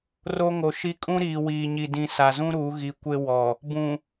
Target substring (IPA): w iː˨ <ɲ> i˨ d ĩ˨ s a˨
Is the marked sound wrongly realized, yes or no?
no